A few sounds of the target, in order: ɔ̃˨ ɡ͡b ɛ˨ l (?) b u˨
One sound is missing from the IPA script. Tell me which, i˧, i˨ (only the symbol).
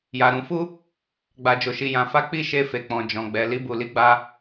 i˧